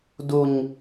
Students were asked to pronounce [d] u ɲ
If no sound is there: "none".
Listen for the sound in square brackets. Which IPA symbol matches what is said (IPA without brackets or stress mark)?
d